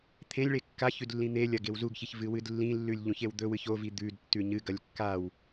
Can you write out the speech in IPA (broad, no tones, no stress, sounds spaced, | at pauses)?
t̪ʰ ẽ lʲ ɭ e kː a ç ʉ d lː ĩ n̪ e lʲ ɐ ɡ e w z u ɡ ç i ç v ɨ w ɨ d lː ĩ lː ʉ lʲ ʎ ũ ç e w d̪ ɵ w ɨ ç o v i d̪ ʉ d tː ʉ ɲ ɨ ɡ ɐ lʲ kː a w